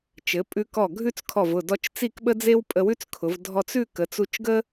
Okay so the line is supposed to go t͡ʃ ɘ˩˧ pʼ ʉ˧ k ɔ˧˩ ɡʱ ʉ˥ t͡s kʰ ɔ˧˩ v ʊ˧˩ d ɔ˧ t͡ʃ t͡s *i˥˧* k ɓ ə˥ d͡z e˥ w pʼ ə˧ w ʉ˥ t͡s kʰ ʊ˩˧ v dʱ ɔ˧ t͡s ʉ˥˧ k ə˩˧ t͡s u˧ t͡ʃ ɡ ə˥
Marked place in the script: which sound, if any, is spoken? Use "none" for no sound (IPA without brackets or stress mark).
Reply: i˥˧